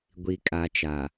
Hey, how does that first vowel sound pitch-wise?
low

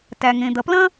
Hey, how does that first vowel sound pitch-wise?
low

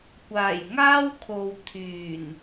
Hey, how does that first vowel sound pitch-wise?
low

